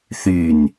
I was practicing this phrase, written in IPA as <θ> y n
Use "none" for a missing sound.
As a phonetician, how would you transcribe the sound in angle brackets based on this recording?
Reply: θ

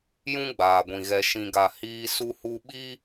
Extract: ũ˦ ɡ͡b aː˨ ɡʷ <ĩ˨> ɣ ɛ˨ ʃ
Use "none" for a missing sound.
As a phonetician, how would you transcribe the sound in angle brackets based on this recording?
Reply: ĩ˨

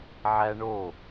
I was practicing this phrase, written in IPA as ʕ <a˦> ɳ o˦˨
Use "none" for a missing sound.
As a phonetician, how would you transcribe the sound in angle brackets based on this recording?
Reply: æ˦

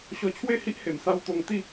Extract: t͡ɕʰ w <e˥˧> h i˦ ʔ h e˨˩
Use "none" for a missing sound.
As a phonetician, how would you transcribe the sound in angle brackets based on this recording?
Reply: e˥˧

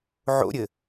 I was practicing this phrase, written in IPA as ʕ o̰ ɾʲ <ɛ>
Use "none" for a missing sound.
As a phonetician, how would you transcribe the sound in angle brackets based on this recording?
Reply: ɘ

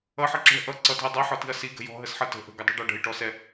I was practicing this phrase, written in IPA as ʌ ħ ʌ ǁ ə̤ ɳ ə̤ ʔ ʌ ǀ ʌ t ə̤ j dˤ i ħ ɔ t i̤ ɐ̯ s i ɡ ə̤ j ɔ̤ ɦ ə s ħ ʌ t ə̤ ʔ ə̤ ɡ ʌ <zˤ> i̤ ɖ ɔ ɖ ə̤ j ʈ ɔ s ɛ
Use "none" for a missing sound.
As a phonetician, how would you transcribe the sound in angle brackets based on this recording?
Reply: dˤ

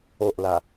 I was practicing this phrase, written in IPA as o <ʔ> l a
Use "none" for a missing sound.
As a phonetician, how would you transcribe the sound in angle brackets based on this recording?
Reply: ʔ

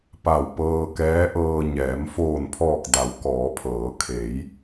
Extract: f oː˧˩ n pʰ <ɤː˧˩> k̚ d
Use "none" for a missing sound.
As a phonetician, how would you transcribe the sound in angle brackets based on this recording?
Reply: ɔː˧˩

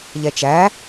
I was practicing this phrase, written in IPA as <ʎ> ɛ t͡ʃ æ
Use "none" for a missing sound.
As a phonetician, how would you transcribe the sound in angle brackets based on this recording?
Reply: ʎ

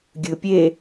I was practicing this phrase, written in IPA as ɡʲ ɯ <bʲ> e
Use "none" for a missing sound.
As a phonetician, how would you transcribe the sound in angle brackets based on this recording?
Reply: pʲ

